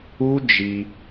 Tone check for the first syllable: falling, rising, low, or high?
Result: high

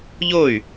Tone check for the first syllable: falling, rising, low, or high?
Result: falling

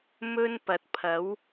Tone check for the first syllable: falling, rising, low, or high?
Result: high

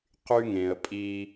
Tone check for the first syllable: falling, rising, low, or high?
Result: high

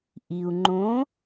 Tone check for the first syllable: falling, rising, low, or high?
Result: low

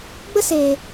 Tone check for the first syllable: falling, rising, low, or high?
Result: high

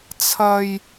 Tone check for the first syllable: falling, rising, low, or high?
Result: high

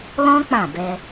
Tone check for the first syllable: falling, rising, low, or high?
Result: high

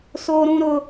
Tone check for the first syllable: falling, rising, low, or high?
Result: high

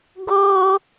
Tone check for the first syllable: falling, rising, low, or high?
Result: high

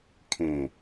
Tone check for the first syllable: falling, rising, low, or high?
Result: low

